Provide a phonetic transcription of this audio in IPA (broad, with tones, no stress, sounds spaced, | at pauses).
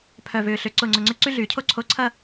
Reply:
pʰ œ˧˩ v ʏː˧˩ ɬ ʏ˧˩ ǀ ʊ˧˩ ŋ͡ǀ ʊ˧˩ ŋ͡ǀ ʏ˥ ǀ y˥ ɮ yː˨˩˦ cʰ o˥ ǀʰ o˧˥˧ ǀʰ ɐ˥˧